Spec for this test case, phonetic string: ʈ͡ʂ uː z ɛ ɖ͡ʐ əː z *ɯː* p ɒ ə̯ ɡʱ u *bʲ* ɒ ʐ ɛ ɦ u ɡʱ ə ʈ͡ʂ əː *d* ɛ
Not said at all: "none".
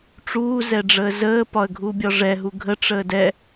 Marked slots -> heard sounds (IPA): əː, bʲ, d

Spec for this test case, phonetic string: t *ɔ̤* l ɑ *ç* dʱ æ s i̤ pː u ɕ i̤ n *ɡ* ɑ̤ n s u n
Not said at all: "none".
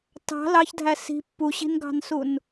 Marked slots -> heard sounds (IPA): ɑ̤, ç, ɡ

